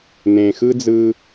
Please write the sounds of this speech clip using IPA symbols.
n̪ ẽ˩ x ɯ˥ d͡z ɯ˧

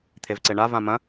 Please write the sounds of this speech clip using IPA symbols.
t̪ʰ e v ǀ e ɳ a v ã m ɐ̃

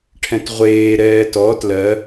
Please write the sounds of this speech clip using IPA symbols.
ʈʰ ɛ̃ t ʁʷ eː ɾ ɛː t ɔ t l ɜ

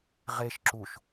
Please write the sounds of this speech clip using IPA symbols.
ʁ e ʃ ǁ u ʃ

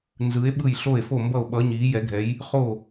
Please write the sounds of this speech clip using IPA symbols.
n z ɯ˧˥ e̯ ɓ ɯ˥˨ j ɬ o˥˨ e̯ f o˥˨ m b ʌ˥˨ o̯ ɓ ʌ˧˥ ɲ iː˧˥ j ɛ˧˥ ɡʱ ɛ˧˥ j | χ o˥˨

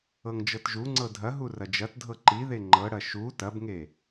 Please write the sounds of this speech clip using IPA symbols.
ɤ ŋ d͡ʒ ɤ t ʒ u ŋ͡ǀ ɤ dʱ ɐ ɦ u r ɐ d͡ʒ ɐ t dʱ ɤ ǃ i ð e ŋ͡ǃ ɤ ɽ ɐ ʃ u t ɐ b ŋ e

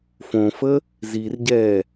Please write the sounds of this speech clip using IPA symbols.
f õ f ə | z i r ɟ ɛː

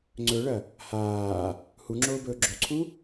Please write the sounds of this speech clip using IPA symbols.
ŋ͡ǀ ɵ ɭ ɐ | h aː | h u ŋ͡ǁ oː b ɵː ɡ͡ǁ o ǀʰ u

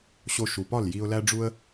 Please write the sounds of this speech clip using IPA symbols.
ɕ o˧ ʃ u˩ p ɒ˥˩ l j i˧ ʊ̯ l æ˥ ɖ͡ʐ u˧ ə̯

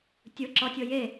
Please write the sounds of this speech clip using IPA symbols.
tʲ ɯ ǁ ɔ tʲ ɤ j e

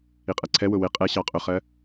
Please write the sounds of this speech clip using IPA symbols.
i qʼ ɜ ǀʰ ɛ w ʊ w ɪ qʼ ɛ ɕ ɑ qʼ ʊ χ ɜ

